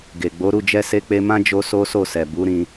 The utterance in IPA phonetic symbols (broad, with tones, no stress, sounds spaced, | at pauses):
ɡ e˨ ɡ͡b o˨˦ ɾ u˦˨ d͡ʒ ɛ˧ s e˧ k͡p e˧ m ã˦ d͡ʒ o˦ s o˦ s o˦˨ s ɛ˨ b u˨˦ ɾ ĩ˧